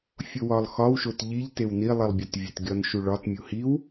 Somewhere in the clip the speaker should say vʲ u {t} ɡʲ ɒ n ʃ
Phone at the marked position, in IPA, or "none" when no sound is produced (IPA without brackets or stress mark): t